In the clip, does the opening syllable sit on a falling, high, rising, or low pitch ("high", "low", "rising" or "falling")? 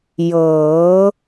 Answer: rising